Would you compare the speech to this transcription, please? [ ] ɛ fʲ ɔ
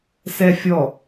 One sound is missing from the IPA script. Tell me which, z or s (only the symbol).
s